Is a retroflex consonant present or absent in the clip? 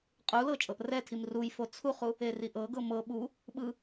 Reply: absent